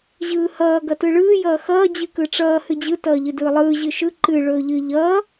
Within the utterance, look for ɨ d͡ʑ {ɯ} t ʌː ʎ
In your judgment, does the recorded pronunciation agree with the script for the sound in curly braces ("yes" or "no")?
yes